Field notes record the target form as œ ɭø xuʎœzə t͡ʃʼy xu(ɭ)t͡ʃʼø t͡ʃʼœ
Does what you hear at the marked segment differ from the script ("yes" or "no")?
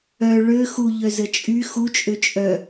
yes